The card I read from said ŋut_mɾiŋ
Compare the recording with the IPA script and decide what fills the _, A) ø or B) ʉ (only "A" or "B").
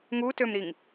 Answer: A